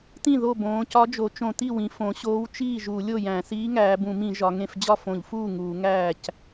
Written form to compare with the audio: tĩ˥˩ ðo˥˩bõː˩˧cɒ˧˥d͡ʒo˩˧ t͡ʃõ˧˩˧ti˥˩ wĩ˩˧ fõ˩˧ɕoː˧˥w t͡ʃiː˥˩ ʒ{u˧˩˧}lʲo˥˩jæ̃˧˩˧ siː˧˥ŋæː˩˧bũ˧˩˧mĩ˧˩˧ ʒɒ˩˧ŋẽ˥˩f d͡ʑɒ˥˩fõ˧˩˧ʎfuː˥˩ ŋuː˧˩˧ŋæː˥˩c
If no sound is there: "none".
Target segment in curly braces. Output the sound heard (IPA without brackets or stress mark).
u˧˩˧